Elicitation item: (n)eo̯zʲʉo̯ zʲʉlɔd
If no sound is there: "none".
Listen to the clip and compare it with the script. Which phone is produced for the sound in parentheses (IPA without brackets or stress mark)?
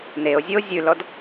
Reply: n